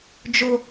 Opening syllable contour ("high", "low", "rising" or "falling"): high